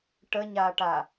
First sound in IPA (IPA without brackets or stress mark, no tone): ʈ